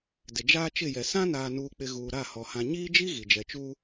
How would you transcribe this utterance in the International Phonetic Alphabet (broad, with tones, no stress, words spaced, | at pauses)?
dɪ˨ d͡ʒaː˦t͡ʃɪ˦˨jɛ˨ sã˦naː˨nuː˨k͡pɪ˨ ɣuː˨ɾa˦˨hɔ˨ hã˨ɲiː˦d͡ʒi˦ ɣi˨d͡ʒɛ˨t͡ʃuː˦